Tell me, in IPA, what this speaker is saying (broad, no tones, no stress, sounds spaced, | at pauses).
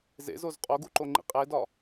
z ḛ z o z qʼ o ɡ u ǃ o ŋ͡ǃ ḭ qʼ e d ɒ